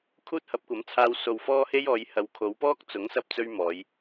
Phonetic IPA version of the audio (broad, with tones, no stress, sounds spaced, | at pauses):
kʰ uː˥ t̚ h ɐ˨˥ p̚ kʷ ɐ˨˥ m t͡sʰ aː˧ w s o˧ w f ɔː˥ h e˥ j ɔː˨˧ j h ɐ˨ w kʰ o˨˧ w p ɔː˥ k̚ t͡s ʊ˨˥ ŋ s ɐ˧ p̚ t͡s ɵ˧ ɥ m ɔː˨˧ j